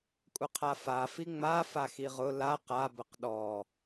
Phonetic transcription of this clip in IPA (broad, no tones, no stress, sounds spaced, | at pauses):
kʷʼ ə qʰ a f a f i ŋ͡m a f a x i ʁ ʊ l a q a b ə q ɗ ɔ